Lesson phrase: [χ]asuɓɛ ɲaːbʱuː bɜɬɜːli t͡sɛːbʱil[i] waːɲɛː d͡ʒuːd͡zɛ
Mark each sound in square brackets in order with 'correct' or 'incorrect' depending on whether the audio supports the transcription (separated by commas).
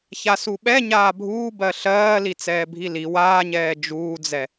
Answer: incorrect, correct